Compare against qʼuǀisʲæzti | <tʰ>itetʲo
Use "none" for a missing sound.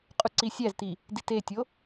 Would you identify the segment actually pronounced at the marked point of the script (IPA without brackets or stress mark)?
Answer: d